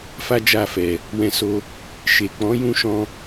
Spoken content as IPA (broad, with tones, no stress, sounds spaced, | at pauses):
f a˦ d͡ʒ a˦˨ f ɛ˨ | w ɛ̃˧ s o˧ | ʃ e˨ k͡p ɔ̃˨˦ j ũ˦˨ ʃ ɔ̃˧